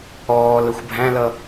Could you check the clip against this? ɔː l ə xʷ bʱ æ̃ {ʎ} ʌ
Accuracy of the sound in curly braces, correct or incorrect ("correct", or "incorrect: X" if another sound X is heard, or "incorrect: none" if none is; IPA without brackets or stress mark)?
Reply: incorrect: l